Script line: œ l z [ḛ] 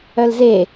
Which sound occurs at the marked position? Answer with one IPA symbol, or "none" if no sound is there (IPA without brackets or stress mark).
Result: e